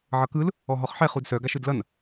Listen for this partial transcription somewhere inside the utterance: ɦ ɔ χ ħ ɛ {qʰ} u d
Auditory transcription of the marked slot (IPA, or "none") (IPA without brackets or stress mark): χ